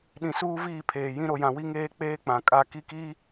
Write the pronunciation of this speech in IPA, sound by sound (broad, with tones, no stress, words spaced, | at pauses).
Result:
ɗĩ˨suː˦ viː˦˨pʰeː˨jĩ˦ ɾo˨jã˨ wi˦ŋeː˦ k͡peː˦k͡pã˨ kʼa˦˨ ki˦kiː˦